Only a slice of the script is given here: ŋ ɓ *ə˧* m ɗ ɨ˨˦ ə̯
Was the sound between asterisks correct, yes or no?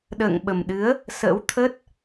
no